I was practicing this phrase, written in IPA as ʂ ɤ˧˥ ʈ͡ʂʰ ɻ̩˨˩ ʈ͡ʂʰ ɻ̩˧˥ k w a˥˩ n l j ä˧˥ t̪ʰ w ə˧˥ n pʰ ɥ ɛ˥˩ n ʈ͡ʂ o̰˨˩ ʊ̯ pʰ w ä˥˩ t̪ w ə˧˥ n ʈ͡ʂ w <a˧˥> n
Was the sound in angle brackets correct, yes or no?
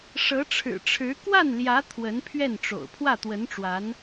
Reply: yes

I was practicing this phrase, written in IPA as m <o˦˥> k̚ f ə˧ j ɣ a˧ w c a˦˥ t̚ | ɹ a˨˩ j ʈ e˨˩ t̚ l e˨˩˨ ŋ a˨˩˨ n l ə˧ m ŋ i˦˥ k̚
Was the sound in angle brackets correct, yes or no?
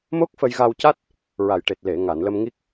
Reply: yes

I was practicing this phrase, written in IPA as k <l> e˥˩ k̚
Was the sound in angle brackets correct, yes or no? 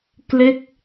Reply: yes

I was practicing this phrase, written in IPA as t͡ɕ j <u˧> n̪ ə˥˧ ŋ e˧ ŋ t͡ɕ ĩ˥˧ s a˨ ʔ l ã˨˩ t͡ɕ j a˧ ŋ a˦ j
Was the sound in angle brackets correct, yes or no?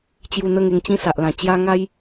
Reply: yes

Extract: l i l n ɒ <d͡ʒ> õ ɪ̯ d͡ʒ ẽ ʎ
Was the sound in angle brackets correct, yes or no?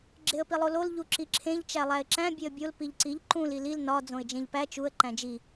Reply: no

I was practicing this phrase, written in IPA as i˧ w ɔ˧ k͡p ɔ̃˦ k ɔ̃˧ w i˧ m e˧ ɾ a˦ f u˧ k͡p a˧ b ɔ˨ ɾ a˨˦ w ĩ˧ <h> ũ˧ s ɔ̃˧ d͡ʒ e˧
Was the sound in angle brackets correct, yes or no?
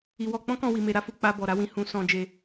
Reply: yes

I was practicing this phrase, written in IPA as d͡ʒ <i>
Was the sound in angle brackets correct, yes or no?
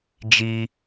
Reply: yes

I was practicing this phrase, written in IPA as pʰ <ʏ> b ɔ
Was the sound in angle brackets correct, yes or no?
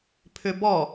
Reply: yes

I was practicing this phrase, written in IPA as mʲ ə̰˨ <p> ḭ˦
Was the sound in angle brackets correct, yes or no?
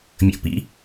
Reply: yes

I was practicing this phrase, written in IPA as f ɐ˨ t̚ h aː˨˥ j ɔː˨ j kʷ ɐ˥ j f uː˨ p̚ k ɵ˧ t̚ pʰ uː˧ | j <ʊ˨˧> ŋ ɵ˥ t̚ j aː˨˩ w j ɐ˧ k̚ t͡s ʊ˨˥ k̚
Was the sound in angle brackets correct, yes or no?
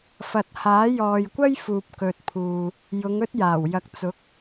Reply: yes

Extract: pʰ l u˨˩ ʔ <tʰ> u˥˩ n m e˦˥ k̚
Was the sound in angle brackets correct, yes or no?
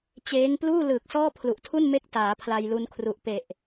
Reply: yes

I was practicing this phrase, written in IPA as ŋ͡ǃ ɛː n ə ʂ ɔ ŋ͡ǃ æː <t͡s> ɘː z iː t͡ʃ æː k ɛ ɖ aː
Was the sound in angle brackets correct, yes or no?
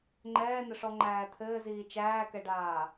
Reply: no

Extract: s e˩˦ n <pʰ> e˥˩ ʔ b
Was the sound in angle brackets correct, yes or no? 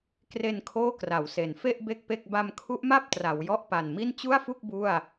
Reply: no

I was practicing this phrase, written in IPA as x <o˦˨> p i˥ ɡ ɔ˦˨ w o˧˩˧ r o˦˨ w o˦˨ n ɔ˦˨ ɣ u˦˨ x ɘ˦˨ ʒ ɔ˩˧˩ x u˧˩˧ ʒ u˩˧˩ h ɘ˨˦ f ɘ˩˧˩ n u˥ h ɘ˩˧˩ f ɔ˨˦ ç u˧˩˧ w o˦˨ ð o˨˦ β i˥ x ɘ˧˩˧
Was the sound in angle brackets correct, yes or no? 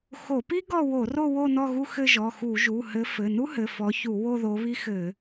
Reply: no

